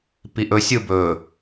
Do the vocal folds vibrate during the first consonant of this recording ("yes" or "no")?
no